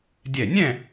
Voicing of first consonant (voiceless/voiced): voiced